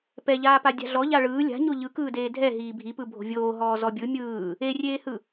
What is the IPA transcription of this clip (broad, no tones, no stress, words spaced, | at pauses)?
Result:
pɛʎaːpa dʲa̤ɮɔʎa ɭɯː lʲa̤ ɲoʎɯkɯːdeː dʱɛ ɦiːbʱipɯ bʱo̤vʲoː ɦɔːzɔbʲɯ mʲɯː | erʲeːhɯ